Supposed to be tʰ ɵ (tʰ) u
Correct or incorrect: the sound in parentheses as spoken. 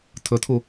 correct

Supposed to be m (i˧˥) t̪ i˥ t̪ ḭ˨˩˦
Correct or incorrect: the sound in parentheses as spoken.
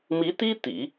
correct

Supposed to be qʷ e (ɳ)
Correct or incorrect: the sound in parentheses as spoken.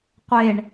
correct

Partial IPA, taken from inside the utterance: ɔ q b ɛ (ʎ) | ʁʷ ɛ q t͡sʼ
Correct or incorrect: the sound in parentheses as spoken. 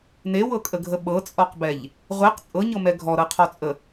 correct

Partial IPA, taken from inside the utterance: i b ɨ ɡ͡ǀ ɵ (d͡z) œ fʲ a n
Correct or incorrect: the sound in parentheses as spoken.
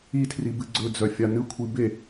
correct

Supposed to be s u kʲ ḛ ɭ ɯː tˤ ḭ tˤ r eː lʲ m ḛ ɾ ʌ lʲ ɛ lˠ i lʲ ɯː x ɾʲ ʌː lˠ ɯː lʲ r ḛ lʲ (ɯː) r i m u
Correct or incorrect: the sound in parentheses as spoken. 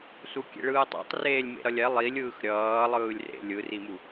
incorrect: ɯ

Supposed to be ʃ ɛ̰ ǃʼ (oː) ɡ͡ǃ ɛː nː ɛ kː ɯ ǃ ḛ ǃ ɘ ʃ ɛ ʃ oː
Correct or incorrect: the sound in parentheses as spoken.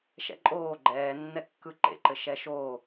correct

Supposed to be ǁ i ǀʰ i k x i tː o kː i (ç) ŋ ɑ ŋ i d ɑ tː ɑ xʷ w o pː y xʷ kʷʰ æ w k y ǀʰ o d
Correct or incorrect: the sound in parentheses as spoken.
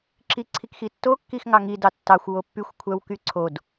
incorrect: x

